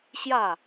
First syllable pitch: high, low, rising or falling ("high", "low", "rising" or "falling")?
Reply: falling